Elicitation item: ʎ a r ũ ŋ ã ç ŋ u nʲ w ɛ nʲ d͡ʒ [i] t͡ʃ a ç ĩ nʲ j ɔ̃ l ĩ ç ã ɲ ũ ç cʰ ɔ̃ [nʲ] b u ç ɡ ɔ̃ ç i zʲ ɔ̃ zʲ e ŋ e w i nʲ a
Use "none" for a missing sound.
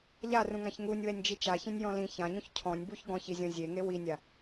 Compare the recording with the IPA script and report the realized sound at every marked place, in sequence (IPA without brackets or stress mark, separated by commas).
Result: i, nʲ